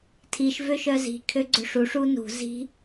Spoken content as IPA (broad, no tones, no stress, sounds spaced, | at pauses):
tʰ i ʃ v ø ʃ œ z i̤ kʰ ø ɡ͡ǀ ø ʂ u ʂ u n ṳ z i̤